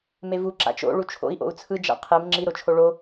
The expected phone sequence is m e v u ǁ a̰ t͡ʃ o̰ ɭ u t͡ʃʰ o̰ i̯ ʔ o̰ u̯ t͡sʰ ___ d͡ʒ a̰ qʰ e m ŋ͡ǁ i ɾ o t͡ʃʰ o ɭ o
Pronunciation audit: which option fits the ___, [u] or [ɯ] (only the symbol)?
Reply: ɯ